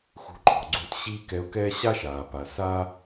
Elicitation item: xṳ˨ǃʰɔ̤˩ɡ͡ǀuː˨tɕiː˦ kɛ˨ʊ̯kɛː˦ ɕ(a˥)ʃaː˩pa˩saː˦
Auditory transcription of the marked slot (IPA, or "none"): a˥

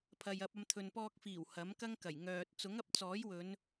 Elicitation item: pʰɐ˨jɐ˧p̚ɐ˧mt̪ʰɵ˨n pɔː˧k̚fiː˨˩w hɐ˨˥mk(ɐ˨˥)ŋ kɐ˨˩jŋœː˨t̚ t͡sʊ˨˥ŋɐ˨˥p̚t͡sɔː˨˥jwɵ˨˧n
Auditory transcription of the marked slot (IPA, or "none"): ɐ˥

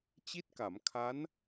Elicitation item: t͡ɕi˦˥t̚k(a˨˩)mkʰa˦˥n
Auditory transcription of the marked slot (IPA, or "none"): a˩˦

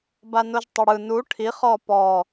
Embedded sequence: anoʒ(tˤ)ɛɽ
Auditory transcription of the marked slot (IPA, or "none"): tˤ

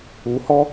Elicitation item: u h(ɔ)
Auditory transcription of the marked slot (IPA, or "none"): ɔ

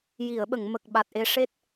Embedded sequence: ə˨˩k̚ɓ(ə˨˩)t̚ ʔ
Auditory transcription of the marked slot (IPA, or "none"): a˨˩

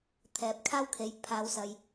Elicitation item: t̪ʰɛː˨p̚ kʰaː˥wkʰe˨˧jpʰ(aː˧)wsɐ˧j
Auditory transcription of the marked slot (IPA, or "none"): aː˧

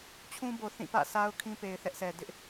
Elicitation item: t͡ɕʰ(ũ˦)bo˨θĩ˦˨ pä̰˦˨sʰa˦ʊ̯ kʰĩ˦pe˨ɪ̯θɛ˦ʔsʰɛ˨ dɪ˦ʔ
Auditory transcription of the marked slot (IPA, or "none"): ũ˦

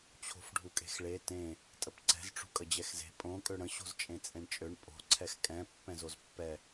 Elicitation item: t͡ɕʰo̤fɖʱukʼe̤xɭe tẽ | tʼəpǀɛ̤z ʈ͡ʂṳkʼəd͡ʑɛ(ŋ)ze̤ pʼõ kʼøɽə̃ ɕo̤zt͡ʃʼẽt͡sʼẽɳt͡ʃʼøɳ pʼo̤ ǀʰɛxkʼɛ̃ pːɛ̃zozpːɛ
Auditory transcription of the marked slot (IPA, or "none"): x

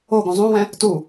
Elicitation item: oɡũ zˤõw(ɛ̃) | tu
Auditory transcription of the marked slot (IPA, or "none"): ɛ̃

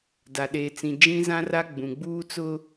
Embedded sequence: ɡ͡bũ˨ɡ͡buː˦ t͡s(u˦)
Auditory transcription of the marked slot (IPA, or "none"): ʊ˦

